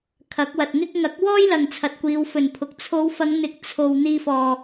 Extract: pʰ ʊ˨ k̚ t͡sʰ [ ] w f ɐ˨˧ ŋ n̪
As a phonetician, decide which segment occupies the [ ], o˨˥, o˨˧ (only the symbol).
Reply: o˨˧